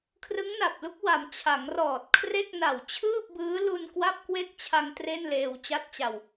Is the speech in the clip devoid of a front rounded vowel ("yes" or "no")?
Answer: yes